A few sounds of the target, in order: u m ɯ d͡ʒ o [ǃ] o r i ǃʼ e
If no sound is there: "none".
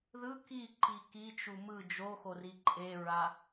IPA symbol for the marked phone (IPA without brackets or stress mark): x